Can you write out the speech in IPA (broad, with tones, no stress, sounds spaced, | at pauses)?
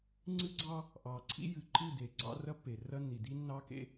ŋ͡ǀ ɨ˦ ɡ͡ǀ ɑ˦ | ʔ ɑ˨ ǀʰ ḭ˦ j ɨ˨ ǃ ɨ˦˨ d e˨ ɡ͡ǀ ɑ̰˦ r ɐ˦ pː e˨ r ɐ˦ nː i˨ d i˦ nː ɑ˦ k ḛ˦